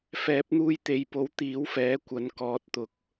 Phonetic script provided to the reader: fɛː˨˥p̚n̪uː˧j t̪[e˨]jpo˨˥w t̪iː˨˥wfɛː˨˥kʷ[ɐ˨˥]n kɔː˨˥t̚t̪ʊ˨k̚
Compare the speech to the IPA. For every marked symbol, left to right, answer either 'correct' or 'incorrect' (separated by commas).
correct, correct